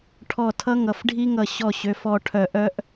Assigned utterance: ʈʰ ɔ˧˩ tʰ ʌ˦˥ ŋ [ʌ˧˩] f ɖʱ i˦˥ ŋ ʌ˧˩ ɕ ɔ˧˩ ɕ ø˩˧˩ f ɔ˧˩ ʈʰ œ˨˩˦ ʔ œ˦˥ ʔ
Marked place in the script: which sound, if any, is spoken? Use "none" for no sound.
ʌ˩˧˩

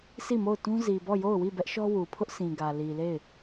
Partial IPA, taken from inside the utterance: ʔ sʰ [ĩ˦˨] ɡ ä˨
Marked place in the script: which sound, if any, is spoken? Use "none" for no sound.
ĩ˨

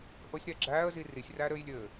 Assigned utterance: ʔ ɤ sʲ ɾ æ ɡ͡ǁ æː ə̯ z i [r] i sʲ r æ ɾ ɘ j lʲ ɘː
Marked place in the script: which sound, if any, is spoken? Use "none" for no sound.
r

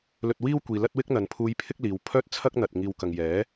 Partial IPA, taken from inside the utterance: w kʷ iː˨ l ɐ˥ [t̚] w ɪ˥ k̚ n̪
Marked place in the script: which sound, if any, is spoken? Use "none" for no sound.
t̚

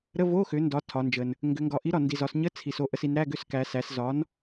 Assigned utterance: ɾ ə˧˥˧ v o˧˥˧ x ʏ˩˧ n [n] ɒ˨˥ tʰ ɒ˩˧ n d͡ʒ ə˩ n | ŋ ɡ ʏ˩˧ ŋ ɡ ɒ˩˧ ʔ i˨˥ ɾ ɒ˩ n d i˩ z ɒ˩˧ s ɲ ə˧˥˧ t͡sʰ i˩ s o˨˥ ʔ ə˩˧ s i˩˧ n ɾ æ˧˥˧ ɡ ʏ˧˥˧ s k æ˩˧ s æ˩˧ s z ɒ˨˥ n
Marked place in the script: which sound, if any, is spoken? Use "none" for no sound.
d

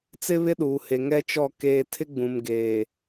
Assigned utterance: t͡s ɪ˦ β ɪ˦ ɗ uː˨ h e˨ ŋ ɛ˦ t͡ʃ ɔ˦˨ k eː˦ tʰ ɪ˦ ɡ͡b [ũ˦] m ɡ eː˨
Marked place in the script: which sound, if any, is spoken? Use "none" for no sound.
ũ˨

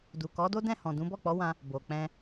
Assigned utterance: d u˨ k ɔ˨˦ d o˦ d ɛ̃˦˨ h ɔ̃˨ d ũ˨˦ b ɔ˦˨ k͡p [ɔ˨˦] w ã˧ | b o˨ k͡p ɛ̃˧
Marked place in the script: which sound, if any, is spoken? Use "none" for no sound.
ɔ˨˦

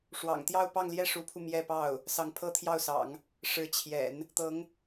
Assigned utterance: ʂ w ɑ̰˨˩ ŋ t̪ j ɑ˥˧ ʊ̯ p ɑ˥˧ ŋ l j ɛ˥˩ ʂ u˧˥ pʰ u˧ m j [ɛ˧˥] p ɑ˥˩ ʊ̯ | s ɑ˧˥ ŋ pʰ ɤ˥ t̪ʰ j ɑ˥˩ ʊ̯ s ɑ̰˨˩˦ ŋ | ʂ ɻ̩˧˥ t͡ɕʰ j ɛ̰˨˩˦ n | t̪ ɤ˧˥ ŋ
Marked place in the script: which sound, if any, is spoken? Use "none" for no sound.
ɛ˥˧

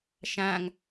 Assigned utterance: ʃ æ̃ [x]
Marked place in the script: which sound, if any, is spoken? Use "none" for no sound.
ŋ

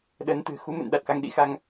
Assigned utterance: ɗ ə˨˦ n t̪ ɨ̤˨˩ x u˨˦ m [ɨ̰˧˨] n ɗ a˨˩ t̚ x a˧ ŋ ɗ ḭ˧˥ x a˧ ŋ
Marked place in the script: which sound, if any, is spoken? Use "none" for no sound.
ɨ̰˧˨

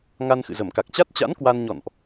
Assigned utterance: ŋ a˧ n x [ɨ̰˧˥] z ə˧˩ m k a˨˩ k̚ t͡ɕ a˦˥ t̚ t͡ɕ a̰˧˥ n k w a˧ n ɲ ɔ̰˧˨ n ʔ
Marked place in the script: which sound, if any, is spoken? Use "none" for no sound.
ɨ̰˧˨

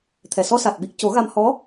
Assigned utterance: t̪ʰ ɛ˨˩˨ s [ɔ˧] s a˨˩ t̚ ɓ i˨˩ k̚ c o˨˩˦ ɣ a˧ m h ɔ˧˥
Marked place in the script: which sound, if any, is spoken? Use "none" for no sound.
ɔ˧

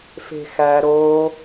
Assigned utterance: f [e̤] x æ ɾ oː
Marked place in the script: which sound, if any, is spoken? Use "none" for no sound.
e̤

